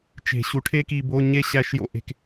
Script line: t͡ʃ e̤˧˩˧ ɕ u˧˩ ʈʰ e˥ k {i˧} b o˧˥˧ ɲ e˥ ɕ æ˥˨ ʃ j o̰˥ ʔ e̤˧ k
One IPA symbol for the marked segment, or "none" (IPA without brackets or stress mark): i˧